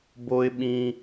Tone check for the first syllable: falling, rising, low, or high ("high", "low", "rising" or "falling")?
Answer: high